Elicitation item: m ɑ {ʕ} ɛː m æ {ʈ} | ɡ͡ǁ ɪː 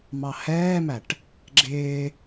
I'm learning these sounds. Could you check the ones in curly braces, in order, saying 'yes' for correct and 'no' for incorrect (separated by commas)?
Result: no, yes